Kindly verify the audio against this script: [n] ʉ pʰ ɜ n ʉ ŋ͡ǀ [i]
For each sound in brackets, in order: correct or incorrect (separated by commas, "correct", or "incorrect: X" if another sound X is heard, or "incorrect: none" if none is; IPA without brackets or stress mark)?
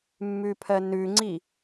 incorrect: mː, correct